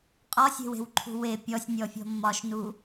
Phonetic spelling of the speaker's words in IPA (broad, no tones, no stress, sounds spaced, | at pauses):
qʼ ɒ sʲ e̤ w e̤ w ǃʰ ṳ w e pʲ ɔ sʲ nʲ ɔ fʲ ɔ̤ mː ɒ ʃ n u